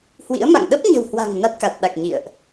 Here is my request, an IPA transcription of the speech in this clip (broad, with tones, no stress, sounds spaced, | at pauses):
h w ḭ˧˥ ə̯ m a̰˧˨ ŋ ɗ ə˦˥ p̚ ɲ ə̤˨˩ w h w a̤˨˩ ŋ n a˦˥ t̚ k a˨˩ t̚ ɗ a˨˩ k̚ ɲ ḭ˧˨ ə̯ ʔ